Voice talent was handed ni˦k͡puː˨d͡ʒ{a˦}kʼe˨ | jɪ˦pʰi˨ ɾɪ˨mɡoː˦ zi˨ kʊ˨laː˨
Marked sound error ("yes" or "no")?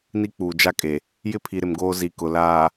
no